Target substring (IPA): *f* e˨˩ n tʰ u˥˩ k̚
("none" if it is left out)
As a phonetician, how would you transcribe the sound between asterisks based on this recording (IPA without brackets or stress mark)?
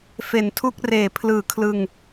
f